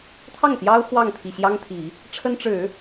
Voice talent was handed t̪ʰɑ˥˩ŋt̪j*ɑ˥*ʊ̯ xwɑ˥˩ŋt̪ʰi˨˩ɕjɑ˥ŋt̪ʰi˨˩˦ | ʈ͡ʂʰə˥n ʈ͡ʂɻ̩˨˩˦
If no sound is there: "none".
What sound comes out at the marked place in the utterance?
ɑ˥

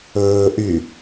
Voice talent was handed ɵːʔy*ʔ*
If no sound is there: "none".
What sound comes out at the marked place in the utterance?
none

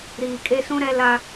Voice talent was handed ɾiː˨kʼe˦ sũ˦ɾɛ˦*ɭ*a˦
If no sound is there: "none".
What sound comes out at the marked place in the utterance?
l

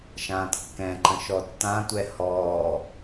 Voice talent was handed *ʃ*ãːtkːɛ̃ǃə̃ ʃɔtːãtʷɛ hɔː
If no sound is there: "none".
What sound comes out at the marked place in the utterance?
ʃ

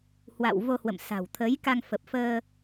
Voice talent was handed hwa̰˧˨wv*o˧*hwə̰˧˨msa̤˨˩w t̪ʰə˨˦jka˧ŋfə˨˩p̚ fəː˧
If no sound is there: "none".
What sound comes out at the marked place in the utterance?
o˧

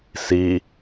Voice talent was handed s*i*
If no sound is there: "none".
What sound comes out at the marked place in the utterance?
i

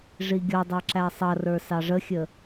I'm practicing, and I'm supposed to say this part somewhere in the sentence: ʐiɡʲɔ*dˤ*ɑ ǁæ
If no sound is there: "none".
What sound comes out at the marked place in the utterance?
dˤ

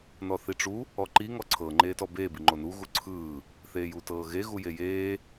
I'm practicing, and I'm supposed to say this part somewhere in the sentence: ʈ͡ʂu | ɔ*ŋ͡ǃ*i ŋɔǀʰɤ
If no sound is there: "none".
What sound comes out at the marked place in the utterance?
ǃ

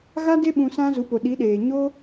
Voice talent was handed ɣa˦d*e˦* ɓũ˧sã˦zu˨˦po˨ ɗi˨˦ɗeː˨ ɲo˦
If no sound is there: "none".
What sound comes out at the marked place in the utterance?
e˦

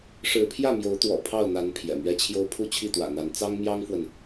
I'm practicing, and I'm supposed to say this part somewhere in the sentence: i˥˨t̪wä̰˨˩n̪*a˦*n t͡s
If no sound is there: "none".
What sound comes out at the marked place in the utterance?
a˨˦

